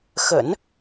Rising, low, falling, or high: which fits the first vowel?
low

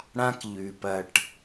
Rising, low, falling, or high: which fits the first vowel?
high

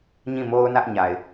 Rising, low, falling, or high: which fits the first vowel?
falling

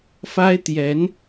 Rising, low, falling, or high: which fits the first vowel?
high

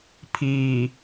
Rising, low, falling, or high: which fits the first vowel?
low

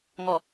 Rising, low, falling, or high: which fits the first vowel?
low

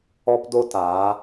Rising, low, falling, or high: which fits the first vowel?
high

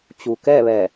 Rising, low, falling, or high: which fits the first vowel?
low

